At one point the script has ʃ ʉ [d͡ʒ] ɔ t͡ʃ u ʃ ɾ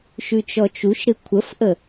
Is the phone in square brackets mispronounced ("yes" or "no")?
yes